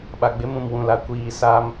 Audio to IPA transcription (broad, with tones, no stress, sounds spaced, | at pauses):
ɓ a˨ ɡ͡b ɪ˦ m ũ˨ m w ũ˨ l a˨ kʷ iː˦˨ s a˦ m